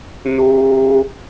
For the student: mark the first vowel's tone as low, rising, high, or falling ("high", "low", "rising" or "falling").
high